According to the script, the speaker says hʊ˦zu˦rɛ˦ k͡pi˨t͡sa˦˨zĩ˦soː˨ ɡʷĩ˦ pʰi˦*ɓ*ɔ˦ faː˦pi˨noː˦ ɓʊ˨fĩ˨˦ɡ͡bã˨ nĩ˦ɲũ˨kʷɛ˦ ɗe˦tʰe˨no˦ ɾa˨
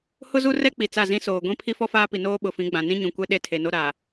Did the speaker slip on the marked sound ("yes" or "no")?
yes